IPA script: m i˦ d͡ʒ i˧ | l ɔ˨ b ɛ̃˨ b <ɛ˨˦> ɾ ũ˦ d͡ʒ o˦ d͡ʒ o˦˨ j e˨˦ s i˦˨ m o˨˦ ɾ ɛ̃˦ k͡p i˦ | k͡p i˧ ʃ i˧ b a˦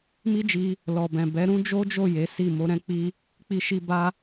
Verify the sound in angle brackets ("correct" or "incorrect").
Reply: correct